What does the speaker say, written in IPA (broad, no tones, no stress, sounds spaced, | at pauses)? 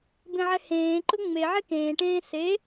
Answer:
b ẽ ʕ ɛ h ẽː ǃ ʊ ŋ͡m e ʕ e k ẽː ʈ ẽː s e